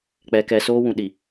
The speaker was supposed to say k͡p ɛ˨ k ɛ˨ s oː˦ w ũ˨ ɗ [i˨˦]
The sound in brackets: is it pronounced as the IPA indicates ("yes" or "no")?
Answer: no